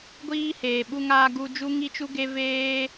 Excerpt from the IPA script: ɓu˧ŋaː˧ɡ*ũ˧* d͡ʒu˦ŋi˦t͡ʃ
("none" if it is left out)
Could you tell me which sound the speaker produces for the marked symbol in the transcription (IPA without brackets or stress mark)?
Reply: u˧